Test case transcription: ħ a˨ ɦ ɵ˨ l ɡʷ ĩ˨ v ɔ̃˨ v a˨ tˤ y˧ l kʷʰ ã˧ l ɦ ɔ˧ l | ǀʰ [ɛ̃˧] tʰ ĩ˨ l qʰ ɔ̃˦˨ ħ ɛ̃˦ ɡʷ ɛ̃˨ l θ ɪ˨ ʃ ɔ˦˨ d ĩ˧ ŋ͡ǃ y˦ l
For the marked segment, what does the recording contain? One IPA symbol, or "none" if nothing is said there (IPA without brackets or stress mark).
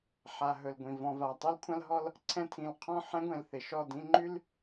ɛ̃˧